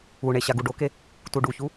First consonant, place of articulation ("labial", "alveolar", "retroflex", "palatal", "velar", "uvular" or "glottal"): retroflex